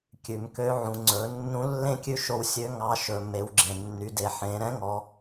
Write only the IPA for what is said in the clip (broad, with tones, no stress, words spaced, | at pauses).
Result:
kʲʉ˩mkø˧˥ʕũ˩˧ ŋ͡ǀɵ˩˧ nːũ˧˥lːẽ˥ kʲʉ˥ ʃo˧wsʲø˧˥ ŋɑ˧˥ ʃɵ˩ me˩˧wɡ͡ǁẽ˩ nːy˩˧de˩ħẽ˩˧ ɾɛ̃˧˥ŋɔ˩˧